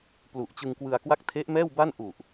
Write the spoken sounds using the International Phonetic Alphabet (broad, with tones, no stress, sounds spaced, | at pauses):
p l u˨˩ ʔ t͡ɕ ɯ˧ ŋ k w ɯ˧ a̯ k w a˥˩ k̚ tʰ e˦˥ ʔ m ɛː˥˩ w b a˥˩ n ʔ u˨˩ ʔ